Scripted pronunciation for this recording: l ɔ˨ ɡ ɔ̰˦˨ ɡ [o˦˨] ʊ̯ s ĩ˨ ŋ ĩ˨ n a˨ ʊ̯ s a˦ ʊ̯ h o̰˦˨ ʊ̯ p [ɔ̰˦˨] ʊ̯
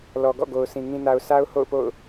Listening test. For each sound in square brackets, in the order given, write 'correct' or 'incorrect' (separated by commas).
incorrect, incorrect